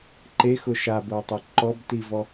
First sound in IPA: ǃ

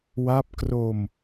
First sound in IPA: w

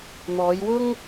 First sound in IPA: n̪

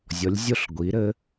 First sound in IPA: zʲ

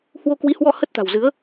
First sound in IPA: h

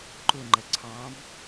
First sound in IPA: ǃ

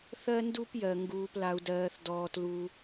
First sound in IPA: θ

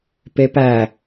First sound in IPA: p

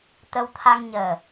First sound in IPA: t̪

